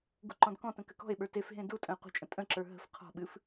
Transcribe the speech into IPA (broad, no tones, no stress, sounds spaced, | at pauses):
ɡ ṳ ǃ ɔ̃ d k ɔ̃ t ə̃ k ɘ k ɔ̤ e̯ ɓ ə˞ t e f ɦ ẽ d u tʼ ə̃ e̯ qʷ ə̤ t͡ʃʼ ə̃ tʼ ə̃ ǁ ə˞ ɦ ə̤ f qʰ ɔ̤ ɓ ɨ f